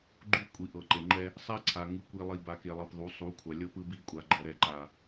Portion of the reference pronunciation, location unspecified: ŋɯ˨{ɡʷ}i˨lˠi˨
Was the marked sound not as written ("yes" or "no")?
yes